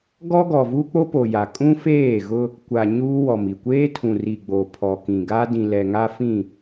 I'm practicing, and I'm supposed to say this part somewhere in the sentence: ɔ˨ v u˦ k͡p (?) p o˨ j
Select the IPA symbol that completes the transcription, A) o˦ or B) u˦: A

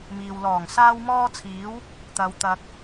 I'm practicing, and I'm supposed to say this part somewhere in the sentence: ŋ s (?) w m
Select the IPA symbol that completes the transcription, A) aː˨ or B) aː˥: B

